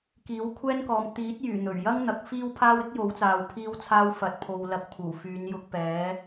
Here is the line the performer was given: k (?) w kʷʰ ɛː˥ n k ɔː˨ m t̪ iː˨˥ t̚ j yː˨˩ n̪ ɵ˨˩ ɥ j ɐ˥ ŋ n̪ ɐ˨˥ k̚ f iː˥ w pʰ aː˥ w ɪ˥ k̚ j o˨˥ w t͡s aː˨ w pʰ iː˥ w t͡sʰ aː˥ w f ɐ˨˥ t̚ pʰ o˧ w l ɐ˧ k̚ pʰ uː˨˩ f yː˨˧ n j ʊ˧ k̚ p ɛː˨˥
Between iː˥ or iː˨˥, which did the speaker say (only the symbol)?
iː˨˥